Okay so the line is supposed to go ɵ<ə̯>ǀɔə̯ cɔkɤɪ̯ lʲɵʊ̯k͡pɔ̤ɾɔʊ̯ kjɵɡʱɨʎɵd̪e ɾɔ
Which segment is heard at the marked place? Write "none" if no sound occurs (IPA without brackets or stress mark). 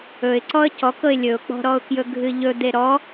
ɪ̯